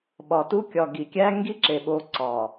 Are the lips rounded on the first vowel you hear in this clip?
yes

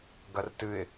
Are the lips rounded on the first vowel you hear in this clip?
no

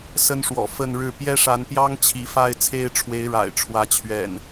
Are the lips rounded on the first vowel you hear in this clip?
no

